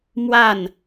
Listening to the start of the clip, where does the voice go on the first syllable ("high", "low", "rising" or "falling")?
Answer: falling